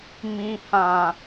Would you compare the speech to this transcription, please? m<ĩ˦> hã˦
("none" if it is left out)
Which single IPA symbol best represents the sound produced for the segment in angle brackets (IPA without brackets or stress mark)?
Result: ĩ˦